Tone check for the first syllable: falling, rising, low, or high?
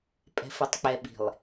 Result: low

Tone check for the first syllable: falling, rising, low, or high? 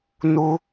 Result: high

